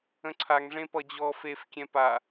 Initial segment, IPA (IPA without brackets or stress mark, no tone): ə̃